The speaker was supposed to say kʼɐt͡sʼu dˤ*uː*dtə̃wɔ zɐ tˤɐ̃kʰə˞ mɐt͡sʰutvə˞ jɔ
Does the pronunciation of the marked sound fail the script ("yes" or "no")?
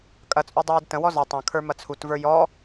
no